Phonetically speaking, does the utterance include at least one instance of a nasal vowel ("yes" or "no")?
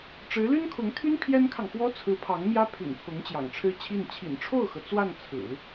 no